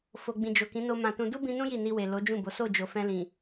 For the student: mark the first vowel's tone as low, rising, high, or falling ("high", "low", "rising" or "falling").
low